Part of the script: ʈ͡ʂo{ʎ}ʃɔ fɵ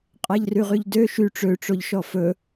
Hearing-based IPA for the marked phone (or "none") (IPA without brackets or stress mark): ʎ